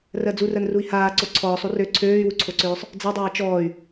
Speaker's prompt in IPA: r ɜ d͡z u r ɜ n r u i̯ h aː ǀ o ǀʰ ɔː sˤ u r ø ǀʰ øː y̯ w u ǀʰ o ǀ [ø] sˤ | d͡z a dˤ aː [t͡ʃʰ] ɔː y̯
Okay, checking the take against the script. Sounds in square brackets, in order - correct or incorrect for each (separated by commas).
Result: incorrect, incorrect